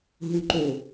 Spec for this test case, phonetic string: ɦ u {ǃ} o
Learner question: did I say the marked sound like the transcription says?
yes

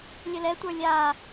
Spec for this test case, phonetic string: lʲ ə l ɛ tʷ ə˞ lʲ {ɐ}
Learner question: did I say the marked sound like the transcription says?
no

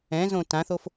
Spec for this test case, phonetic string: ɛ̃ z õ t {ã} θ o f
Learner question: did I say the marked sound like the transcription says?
yes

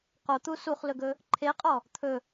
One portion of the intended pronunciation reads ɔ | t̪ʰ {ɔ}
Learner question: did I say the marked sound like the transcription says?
no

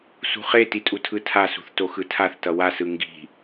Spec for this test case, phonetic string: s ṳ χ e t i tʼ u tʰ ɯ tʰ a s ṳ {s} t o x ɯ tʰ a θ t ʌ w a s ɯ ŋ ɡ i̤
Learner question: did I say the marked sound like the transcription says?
no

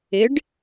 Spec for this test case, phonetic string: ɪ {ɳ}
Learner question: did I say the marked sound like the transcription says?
no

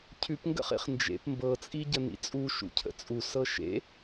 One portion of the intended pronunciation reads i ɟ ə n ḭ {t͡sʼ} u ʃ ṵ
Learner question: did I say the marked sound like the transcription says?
yes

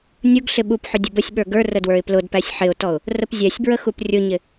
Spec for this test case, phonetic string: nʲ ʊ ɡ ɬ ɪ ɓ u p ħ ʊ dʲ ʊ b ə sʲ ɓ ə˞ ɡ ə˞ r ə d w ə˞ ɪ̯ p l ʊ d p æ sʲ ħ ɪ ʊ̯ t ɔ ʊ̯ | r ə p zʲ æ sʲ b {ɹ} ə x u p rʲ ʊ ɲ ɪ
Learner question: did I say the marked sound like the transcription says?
yes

